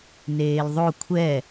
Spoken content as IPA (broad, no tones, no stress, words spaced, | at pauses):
neːlðˤo kʷʰɛ